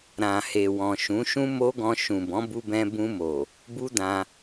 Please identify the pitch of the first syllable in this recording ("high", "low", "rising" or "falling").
low